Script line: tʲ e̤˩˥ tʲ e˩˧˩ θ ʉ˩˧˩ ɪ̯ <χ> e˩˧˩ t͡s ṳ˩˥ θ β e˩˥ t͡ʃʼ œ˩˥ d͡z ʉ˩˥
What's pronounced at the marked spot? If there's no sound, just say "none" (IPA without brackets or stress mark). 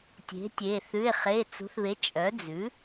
χ